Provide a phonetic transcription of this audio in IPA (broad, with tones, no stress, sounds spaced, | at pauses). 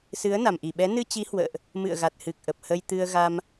s ɨ˨˦ ə̯ n a˨˩ m ʔ i˧˩ ɓ ɛ˨˦ n ɨ˧ t͡ɕ i˨˦ h w ə̰ː˧˨ ʔ | m ɨ̰˧˨ ə̯ ɣ a˨˩ t̚ h ɨ˨˩ k̚ ʔ ə˨˩ p̚ h ə˧ j t̪ ɨ˧ ə̯ ɣ a˧ m